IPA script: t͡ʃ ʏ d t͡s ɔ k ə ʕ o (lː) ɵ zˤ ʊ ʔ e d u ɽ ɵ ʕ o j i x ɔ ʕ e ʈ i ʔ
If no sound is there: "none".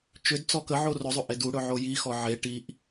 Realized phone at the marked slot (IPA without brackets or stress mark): r